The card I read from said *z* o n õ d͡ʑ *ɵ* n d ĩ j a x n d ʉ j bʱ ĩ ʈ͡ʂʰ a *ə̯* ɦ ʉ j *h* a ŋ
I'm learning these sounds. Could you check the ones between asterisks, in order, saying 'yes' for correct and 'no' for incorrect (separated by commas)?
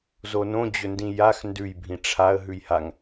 yes, yes, yes, yes